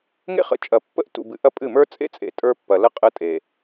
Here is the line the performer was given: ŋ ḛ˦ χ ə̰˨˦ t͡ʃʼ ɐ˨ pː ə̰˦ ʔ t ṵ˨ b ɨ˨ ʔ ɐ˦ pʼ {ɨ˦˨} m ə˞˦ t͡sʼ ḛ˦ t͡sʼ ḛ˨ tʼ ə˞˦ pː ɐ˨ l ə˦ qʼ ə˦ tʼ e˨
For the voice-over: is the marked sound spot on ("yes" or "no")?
yes